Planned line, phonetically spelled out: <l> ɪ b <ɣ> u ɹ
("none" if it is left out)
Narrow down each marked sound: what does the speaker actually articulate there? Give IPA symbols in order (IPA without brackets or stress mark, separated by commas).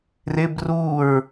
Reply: r, r